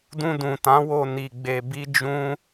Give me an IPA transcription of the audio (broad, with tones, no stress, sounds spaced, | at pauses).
d ũ˧ d ũ˨ t ã˨˦ w o˧ n i˧ ɡ͡b e˧ b i˦ d͡ʒ ũ˦